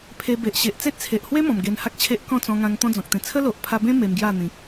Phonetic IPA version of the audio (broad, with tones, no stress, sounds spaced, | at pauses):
pʰ e˧ b e˨ ʔ ɕ e˨ ʔ t͡s e˦ t̚ t͡sʰ e˨ ʔ h w e˦ m ɔ̃˨˩ m ɡ e˧ n h a˦ k̚ t͡ɕʰ e˦ ʔ k ɔ̃˥˧ t͡s ɔ̃˧ ŋ ã˧ ŋ t̪ ɔ̃˦ d͡z ɔ̃˨ k̚ t̪ ẽ˧ t͡sʰ ə˦ l o˨ ʔ pʰ a˧ b ẽ˦ m e˧ m ɡ j a˥˧ n̪ ĩ˨ k̚